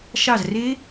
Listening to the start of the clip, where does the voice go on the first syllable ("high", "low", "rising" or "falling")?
falling